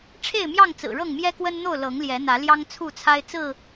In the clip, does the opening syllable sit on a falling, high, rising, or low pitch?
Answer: falling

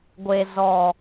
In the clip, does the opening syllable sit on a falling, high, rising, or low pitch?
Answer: low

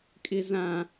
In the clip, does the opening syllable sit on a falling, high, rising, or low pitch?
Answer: high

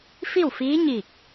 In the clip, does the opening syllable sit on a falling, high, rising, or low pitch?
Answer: falling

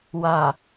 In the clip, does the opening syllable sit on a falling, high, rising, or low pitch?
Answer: low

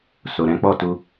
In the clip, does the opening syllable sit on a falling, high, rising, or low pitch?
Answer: low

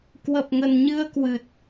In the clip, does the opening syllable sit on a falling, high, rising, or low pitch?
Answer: low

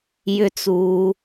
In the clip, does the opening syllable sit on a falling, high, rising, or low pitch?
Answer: high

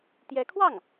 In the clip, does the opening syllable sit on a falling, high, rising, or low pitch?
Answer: rising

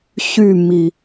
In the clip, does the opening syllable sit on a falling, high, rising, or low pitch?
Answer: falling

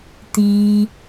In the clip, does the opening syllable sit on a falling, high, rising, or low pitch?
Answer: low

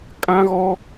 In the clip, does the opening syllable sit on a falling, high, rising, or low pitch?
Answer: high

